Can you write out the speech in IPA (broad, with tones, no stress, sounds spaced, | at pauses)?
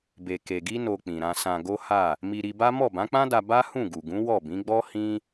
b e˧ k e˧ ɡ i˦ n o˧ k͡p ĩ˨ ɾ ã˧ s ã˧ ɡ o˦ h a˦˨ | m i˧ ɾ i˧ b a˦ m ɔ˦˨ b ã˨˦ k͡p ã˦ d a˧ b a˦ h ũ˦˨ ɡ u˨ ɡ ũ˨˦ w ɔ˦˨ b ĩ˨˦ ɡ͡b ɔ˦ h ĩ˦